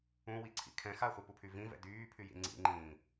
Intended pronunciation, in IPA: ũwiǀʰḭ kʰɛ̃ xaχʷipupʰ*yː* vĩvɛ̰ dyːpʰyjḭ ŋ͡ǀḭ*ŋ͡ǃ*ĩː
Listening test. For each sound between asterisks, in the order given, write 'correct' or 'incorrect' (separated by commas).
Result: incorrect, correct